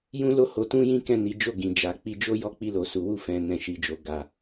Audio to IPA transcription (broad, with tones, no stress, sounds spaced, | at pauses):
j ũ˦ l o˦ h o˧ t ũ˦ j ĩ˦ k ɛ̃˦˨ n i˨˦ d͡ʒ o˦˨ ɡ ĩ˨ d͡ʒ a˨ k͡p i˧ d͡ʒ o˦ j ɔ˦˨ k͡p i˧ l o˨ s u˨ w u˧ f ɛ̃˨ n ɛ̃˨ ʃ i˨ d͡ʒ o˨ ɡ a˨